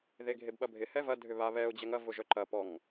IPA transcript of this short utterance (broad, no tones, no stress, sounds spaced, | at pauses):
ð e ɡʱ e b ɓ ɐ bʱ ɪ h ɛ v ɐ dʱ ʏ β a β ɛ ʊ̯ d͡ʑ ɛ ŋ ɐ v ʊ ʒ œ ǃ ɐ p ɔ ŋ